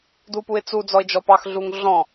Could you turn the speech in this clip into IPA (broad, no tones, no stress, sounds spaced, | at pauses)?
d u p u ɪ̯ t͡s u d͡z ɔ ɪ̯ d͡ʒ ɔ p ɑ x ɮ u ŋ ɮ ɔ̃